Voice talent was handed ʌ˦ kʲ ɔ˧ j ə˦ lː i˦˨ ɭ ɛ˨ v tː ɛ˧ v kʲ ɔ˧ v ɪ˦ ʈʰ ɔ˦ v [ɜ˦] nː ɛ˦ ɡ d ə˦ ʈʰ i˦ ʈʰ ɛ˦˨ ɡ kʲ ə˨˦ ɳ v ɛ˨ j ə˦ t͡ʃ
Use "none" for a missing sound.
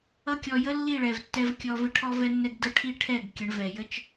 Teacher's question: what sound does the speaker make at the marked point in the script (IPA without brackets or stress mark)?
ɛ˦